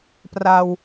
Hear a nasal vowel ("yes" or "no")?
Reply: no